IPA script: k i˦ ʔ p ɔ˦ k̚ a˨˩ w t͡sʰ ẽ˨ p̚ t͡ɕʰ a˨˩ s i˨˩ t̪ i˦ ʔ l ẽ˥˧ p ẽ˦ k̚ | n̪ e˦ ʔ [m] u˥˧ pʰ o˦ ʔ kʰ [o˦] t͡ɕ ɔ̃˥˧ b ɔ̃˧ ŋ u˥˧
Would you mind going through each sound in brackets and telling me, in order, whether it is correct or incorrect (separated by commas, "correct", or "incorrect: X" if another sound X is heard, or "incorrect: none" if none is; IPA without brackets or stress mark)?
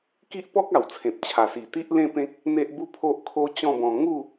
incorrect: b, correct